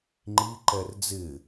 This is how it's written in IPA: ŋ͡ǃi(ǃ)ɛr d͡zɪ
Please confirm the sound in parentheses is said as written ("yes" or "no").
yes